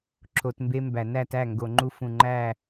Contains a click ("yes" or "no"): yes